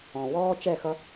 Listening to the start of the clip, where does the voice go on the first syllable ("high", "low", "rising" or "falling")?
low